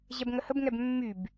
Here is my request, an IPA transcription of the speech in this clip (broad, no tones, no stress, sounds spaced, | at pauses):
ʑ ɛ b ŋ ə h ə b ŋ ɛ b mː y b